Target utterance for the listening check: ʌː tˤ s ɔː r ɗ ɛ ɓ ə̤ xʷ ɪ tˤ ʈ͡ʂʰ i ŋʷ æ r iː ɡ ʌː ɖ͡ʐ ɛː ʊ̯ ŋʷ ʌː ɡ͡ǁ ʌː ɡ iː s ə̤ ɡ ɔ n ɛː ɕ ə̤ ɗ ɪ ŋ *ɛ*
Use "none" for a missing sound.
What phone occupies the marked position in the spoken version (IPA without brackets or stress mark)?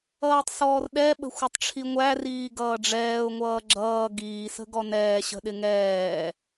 ɛː